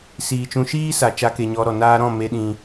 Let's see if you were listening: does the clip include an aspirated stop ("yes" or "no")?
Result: no